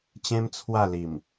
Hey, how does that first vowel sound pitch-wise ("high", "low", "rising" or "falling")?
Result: high